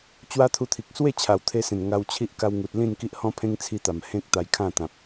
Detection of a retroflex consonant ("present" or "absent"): absent